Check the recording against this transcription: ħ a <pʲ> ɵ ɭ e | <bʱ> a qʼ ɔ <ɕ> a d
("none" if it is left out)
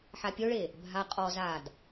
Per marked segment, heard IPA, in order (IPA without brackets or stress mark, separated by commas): pʲ, bʱ, z